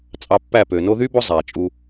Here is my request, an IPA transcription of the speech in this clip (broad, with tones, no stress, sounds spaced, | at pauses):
t͡sʼ ɑ˧ pː æ˦˨ p ø˨ n o˧ ð y˦ b o˦ zˤ æ˨ t͡ʃʼ u˧